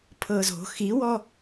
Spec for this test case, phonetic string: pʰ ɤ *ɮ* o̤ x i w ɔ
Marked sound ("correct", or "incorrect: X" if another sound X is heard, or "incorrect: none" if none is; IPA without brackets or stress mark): incorrect: z